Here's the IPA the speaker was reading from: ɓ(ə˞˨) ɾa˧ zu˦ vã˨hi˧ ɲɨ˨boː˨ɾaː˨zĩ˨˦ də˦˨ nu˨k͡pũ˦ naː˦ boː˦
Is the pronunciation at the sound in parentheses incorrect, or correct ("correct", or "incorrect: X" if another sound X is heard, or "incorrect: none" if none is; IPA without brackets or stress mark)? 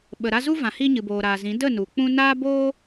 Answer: incorrect: ə˨